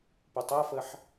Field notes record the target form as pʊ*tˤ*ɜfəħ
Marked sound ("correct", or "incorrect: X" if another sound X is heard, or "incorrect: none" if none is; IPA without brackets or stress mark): correct